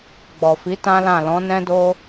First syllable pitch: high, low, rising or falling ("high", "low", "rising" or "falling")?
low